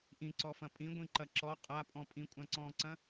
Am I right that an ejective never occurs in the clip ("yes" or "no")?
no